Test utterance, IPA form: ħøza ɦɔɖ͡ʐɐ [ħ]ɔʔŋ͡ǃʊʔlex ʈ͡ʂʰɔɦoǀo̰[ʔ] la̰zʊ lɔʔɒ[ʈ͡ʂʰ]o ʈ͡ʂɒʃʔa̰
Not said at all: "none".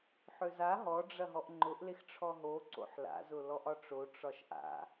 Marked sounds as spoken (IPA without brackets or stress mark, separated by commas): ɦ, ħ, ʈ͡ʂ